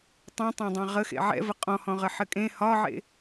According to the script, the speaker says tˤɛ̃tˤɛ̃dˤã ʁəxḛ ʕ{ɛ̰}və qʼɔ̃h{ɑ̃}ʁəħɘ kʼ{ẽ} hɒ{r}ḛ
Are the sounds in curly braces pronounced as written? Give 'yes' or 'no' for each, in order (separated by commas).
yes, no, yes, no